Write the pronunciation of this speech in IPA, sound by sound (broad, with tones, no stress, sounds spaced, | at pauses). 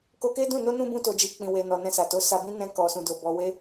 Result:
k o˧ k e˦ d ũ˦˨ n o˧ n ũ˧ b ũ˧ t o˨ d͡ʒ i˨ k͡p ĩ˧ w e˧ n ɔ˨ n ɛ̃˧ s a˨ t o˨˦ s a˧ b ĩ˦ n ɛ̃˧ k ɔ˨ s ũ˨ d o˨ b ɔ˨ w e˧